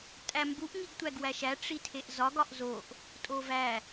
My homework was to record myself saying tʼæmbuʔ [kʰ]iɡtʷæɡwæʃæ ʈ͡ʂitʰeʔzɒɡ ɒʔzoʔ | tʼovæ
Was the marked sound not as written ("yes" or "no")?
yes